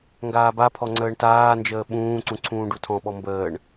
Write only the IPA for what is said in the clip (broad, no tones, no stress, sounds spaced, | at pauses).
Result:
ŋ ɡ aː b a pʰ ɔ ŋ͡ǀ əː ɳ t aː n d͡ʒ əː ɓ ũː ǀ ũ ǀʰ ũː ɖ u tʰ ɔ̃ ɓ ɔ m b əː ɳ